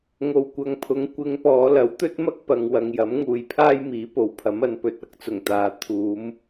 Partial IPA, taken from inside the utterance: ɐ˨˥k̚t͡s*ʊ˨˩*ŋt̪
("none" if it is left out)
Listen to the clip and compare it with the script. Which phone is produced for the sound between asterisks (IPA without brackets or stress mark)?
ʊ˨˩